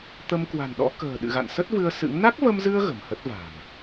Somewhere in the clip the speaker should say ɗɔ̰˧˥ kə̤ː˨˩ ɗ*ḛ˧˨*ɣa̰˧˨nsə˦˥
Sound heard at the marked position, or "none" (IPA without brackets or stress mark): ɨ̰˧˨